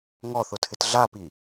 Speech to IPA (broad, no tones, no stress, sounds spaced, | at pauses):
ŋ ɔ θ ʊ tʰ ɪ t ɮ a p i